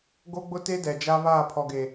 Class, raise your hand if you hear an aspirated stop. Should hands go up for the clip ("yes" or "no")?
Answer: yes